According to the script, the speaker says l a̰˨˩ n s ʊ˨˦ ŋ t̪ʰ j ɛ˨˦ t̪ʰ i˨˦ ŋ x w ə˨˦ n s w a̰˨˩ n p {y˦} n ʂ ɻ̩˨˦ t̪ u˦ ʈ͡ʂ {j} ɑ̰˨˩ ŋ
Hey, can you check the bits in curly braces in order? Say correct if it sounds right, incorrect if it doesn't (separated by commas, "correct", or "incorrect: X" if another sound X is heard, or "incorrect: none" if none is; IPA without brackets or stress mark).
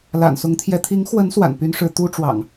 correct, incorrect: w